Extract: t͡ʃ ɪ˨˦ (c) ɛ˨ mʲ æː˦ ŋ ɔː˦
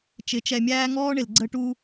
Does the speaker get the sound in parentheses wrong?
yes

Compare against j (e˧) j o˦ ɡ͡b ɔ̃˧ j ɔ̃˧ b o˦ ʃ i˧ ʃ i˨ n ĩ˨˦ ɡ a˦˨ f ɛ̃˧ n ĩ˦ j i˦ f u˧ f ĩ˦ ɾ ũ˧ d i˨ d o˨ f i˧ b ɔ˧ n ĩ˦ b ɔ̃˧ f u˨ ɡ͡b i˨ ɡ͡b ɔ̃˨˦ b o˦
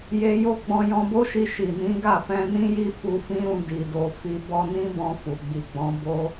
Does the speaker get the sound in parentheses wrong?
no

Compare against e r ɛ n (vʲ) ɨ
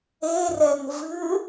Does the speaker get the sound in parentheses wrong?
yes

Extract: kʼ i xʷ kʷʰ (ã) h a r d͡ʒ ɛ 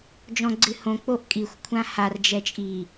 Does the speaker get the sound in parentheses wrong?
no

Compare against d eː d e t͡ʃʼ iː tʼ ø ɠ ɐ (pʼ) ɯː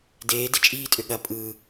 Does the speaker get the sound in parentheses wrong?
no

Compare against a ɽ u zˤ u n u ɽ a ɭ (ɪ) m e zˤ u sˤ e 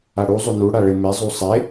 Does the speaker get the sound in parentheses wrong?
no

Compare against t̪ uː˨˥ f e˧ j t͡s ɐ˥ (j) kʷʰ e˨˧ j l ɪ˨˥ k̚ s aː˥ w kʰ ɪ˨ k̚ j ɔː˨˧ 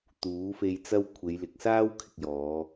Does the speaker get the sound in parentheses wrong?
yes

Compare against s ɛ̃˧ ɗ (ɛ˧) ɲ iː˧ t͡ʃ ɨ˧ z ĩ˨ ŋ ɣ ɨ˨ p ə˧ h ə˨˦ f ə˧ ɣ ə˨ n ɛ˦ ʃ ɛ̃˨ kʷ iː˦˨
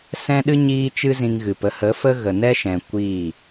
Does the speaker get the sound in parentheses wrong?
yes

